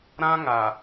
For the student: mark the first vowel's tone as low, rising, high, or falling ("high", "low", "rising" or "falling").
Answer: high